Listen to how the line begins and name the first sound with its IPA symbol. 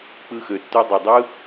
k͡p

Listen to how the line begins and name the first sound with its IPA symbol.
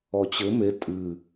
ɔ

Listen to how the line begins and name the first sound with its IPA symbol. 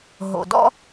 ɦ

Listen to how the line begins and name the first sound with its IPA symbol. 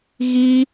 ɣ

